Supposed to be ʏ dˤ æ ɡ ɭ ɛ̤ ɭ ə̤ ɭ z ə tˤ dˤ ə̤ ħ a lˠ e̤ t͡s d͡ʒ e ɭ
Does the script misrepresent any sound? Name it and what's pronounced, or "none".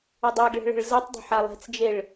æ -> a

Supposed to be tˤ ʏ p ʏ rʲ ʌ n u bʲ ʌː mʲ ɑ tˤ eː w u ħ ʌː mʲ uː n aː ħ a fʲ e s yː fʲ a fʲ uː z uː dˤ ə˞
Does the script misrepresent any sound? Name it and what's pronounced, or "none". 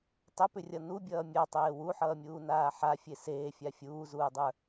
yː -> eː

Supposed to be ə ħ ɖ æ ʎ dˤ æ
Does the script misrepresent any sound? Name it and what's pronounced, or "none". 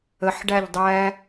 none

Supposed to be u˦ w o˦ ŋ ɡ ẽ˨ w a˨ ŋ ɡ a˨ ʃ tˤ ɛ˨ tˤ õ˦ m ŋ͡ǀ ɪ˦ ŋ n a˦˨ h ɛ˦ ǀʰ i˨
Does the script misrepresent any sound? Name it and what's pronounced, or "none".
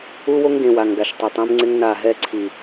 h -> ɦ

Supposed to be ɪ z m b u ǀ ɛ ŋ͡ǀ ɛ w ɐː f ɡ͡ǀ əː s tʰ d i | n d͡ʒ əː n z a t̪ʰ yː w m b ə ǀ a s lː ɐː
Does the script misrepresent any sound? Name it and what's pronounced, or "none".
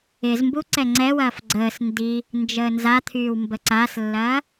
tʰ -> n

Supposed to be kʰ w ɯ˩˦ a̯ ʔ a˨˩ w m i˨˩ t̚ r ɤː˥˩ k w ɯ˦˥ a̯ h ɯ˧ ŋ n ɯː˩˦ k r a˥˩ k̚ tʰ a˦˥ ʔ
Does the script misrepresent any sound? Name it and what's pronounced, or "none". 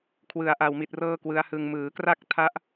n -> m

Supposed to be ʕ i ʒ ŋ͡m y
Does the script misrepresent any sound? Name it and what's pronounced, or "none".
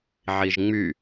none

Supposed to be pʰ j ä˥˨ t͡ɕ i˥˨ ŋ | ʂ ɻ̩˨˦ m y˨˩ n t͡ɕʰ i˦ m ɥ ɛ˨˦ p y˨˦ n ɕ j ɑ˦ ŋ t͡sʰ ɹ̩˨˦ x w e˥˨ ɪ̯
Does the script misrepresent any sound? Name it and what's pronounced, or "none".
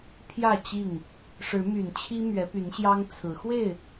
none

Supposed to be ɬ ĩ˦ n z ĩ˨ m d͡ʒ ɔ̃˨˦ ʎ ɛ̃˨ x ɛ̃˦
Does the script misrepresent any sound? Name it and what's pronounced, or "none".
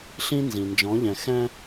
m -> n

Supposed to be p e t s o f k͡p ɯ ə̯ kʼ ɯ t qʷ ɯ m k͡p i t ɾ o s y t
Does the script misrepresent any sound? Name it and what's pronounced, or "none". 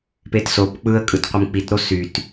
f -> p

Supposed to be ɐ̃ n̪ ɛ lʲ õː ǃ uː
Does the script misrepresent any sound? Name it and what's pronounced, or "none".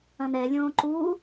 none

